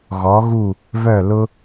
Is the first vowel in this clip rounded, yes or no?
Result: yes